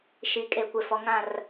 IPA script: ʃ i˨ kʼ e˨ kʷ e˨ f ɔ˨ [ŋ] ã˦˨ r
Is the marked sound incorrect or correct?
correct